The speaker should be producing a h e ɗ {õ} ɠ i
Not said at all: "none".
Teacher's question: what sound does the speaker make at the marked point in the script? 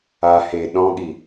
ɔ̃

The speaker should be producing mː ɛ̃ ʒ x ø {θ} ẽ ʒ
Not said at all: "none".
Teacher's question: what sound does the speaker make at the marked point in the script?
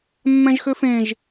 f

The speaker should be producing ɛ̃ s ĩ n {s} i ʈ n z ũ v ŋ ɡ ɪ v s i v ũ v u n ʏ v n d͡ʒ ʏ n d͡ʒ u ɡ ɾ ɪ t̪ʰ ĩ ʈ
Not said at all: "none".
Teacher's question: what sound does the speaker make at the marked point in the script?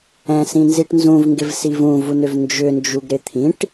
z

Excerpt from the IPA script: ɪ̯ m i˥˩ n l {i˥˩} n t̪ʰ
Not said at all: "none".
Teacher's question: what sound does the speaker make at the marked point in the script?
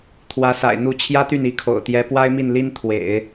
i˥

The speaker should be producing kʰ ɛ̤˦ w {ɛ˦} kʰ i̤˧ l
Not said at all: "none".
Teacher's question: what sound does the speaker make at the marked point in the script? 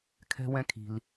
ɛ̃˦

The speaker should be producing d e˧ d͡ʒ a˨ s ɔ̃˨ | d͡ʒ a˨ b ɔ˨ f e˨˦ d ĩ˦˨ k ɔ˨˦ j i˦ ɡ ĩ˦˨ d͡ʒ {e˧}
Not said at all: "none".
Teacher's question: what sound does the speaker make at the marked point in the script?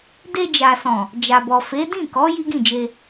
e˧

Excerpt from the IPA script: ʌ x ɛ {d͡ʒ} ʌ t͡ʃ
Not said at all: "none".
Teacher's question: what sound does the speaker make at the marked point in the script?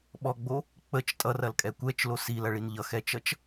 t͡ʃ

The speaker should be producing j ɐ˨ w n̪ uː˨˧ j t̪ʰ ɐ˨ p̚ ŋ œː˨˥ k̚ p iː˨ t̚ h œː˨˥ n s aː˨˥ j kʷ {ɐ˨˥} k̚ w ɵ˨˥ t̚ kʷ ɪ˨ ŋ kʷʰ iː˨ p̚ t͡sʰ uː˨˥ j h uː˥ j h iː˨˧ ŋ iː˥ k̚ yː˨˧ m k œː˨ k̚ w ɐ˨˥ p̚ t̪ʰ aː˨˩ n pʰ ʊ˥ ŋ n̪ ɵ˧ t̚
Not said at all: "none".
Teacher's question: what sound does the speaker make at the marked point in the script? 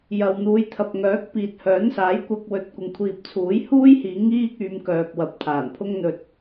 ɐ˧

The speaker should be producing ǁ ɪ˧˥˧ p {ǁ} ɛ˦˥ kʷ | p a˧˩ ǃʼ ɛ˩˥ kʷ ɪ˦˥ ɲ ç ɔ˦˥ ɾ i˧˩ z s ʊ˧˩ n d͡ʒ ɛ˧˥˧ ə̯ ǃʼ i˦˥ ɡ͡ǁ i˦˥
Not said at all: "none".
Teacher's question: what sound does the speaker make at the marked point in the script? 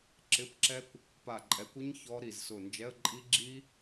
ǁ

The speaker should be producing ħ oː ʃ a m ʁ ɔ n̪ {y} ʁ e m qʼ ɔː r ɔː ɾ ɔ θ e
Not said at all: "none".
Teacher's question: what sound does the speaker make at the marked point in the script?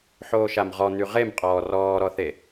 y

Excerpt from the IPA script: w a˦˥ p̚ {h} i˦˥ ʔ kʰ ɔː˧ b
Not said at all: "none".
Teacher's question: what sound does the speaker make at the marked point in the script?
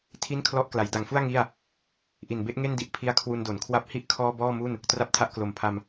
h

